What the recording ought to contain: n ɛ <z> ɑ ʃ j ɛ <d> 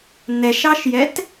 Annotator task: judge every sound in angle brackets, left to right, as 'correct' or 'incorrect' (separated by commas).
incorrect, incorrect